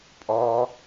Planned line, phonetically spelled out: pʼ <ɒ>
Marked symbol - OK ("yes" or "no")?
yes